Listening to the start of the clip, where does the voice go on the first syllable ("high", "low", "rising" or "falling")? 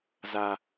high